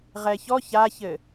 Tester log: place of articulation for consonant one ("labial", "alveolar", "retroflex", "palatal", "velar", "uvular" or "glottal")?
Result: uvular